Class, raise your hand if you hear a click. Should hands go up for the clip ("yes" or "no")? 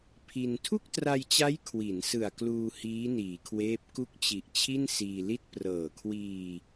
no